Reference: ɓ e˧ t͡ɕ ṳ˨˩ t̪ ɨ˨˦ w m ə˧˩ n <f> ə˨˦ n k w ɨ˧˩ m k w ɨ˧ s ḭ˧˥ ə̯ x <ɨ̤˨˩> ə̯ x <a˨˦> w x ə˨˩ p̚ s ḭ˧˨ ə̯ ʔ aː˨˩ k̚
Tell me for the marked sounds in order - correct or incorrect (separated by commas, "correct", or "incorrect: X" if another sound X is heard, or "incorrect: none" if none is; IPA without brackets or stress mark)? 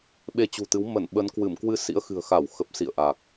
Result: incorrect: ɓ, correct, incorrect: a˧˩